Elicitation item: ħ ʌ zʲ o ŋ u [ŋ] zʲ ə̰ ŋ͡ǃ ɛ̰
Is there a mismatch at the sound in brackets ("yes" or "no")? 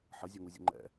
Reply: yes